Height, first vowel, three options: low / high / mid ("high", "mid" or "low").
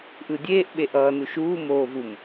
high